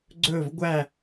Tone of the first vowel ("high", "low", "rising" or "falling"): falling